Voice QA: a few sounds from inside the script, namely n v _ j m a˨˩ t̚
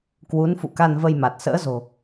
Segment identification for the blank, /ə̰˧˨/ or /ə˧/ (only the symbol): ə˧